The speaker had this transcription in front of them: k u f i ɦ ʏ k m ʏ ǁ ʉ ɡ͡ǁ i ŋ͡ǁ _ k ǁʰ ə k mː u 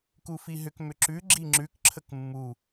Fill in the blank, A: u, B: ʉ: B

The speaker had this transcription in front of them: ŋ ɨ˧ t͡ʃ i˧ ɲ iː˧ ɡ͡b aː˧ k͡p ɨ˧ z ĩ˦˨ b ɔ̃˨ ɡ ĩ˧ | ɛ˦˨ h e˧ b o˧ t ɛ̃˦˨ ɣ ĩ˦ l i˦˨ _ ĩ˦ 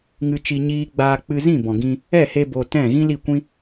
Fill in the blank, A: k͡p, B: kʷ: B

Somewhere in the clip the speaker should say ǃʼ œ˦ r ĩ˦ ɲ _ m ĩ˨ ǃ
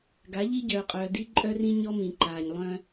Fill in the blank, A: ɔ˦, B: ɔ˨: A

